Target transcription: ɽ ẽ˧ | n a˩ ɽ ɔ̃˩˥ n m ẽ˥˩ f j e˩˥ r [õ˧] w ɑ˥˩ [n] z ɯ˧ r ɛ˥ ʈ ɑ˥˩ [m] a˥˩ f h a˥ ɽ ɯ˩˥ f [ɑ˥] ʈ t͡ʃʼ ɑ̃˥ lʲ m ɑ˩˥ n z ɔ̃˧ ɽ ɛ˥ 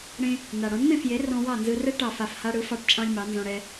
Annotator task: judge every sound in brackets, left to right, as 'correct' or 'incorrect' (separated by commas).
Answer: incorrect, correct, incorrect, correct